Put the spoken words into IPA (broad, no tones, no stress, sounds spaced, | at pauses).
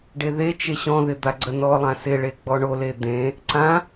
ɖ e ð e t͡ʃ e ɕ ɔ̃ ð ɪ d̪ a ɡ͡ǀ ə n ɔ lˠ ã s ɪ ɭ e ɡ͡b ɔ ɳ o l e d̪ ẽ | ǀ ã